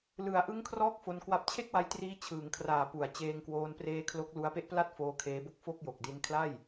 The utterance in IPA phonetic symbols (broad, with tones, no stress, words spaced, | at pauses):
lɯ˩˦a̯ʔɯ˦˥ŋ kʰrɔː˥˩k̚fo˧nkwa˦˥p̚ t͡ɕʰe˥˩k̚wa˧jtriː˧ t͡ɕʰɯː˩˦ŋkʰraː˨˩pu˩˦a̯ t͡ɕeː˧ŋkwoː˧n preː˧ kʰlo˦˥k̚lu˦˥a̯ pe˦˥ʔpla˥˩t̚ foː˦˥kʰeː˦˥bo˥˩k̚ fo˥˩k̚jo˨˩k̚di˦˥n kʰla˥˩j